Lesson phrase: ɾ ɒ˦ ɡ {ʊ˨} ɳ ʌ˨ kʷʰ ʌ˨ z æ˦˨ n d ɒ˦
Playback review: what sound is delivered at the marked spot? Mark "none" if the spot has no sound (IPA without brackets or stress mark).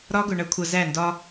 ʊ˨